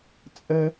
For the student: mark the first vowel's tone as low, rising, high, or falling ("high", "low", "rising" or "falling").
high